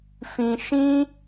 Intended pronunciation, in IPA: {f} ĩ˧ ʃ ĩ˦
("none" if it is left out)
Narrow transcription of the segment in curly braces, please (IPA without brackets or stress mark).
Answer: f